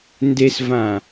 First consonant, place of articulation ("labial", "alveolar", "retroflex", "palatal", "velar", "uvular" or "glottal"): alveolar